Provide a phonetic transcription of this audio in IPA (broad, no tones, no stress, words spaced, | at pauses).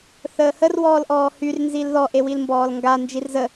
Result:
θəːhər wɔːlʔɔːhyr nzilðɔ ʔewilmbɔːlŋɡa nd͡ʒirzə